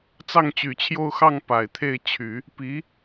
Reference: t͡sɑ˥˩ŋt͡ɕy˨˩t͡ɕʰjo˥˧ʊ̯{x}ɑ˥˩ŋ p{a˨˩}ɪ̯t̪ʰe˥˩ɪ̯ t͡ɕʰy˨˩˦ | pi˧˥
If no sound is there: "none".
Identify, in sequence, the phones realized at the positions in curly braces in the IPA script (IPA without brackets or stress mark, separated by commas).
x, a˨˩